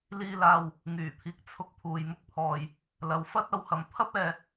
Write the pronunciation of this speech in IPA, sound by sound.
l iː˧ l aː˧ w | ŋ yː˨˩ pʰ iː˨ k̚ t͡sʰ ʊ˧ k̚ pʰ uː˨ j m ʊ˥ k̚ pʰ ɔː˧ j | l ɐ˨˧ w f ɐ˥ t̚ ɐ˨˧ w h ɐ˨˧ m pʰ ɐ˥ p̚ ɛː˧

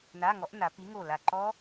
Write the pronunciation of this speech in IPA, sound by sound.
n a˧˥˧ ŋ ɔ˨˥ ʔ n a˩˧ p i˨˥ ŋ o˧˩ l a˧˩ ǃ ɔ˦˥

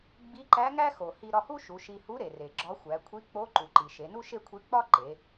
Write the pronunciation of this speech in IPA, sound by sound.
ɡ͡b i˧˥ ǃ æ˧˥ ŋ æ˥ x o˩ h i˧ ɾ ɒ˧ h u˥ ʃ u˩˧ ʃ i˧ h u˧˥ ɾ e˩ r e˩ ɡ͡ǁ ɒ˧˥ xʷ æ˩˧ kʷʰ i˧˥ k͡p o˧˥ ǃ u˩ ǃ i˩ ʃ e˩˧ n u˥ ʃ e˥ kʷʰ i˧˥ k͡p ɒ˥ ǃ e˩˧

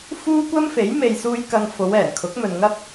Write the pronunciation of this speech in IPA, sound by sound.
f uː˥ kʷ ɐ˥ m f e˨˥ j m e˨ j s uː˧ j k ɐ˧ ŋ f o˨˧ w ɛː˨˩ n kʰ ʊ˨˥ k̚ m ɵ˨ n ŋ ɐ˥ p̚

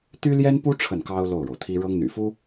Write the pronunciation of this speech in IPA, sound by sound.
t̪ y˥ l j ɛ˥ n p u˥ ʈ͡ʂʰ ə˥˩ n k ɑ˥ ʊ̯ l o˥˩ ʊ̯ ɻ o˩ ʊ̯ t̪ʰ i˥ ɻ ɤ˥ ŋ n̪ y̰˨˩ f u˥

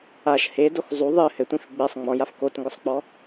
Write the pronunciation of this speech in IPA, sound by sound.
a ʃ h e d o x zˤ u ðˤ ɨ h ɘ tʷ ĩ f ɡ͡b e sˤ ŋ͡m ɔ̃ j a f k o t ŋ ɡ ʊ sˤ k͡p ɔ

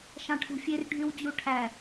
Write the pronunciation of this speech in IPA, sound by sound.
ʃ ɑ̃ ʈʰ ṳ fʲ e r ɖʱ y w d͡ʑ u ʈʰ æ

